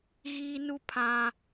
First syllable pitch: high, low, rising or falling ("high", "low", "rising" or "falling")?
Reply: high